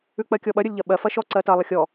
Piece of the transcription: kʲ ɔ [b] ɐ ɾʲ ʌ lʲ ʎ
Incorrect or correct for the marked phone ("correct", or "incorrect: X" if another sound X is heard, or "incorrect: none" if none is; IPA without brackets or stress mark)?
incorrect: ɓ